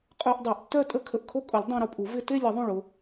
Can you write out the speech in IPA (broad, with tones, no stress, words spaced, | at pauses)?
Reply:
qʼœ˧ʔ dˤe˨˩˦ʔtːœ˥˧tʼə˥˧ kʰə˧˩ʔkʰo˥˧kʼʊ˨˩˦lʲ dˤã˧ɾʊ˧˩pʼu˨˩˦ vɪ˧te˥˧lʲə˨˩˦ðˤũ˧˩ɭ ʊ˧